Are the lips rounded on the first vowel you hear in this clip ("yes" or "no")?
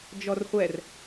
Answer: yes